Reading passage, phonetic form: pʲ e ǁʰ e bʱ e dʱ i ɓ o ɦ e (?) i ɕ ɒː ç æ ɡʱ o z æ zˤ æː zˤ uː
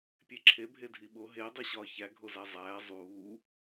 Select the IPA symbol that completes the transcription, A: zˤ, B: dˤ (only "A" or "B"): B